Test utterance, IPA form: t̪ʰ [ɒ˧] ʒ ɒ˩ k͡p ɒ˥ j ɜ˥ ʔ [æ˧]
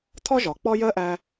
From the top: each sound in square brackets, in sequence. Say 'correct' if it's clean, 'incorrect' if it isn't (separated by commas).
incorrect, correct